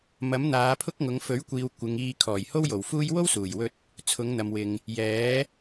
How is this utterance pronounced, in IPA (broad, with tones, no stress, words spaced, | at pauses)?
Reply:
mɐ˨˥mn̪aː˨˧pʰʊ˥k̚ŋʊ˨˧ŋ fɵ˨˥ɥkʷiː˨w kʷɪ˨˧ŋ iː˧ kʰɔː˨˩jho˥wjo˨˩wfuː˥j wo˥wsuː˨˩jwɵ˧t̚ | t͡sʰʊ˨˧ŋn̪ɐ˨mwɪ˨ŋ | jɛː˨˥